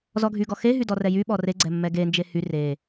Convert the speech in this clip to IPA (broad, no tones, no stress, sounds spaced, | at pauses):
z ɔ ɡʱ y ɡ ɔ x e ɦ y d ɔ r ɛ j y ɓ ɔ r e ɡ͡ǀ ɛ mː ɛ ɡ e n d͡ʒ e h y r e